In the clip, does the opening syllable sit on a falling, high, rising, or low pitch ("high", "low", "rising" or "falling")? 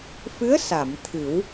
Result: rising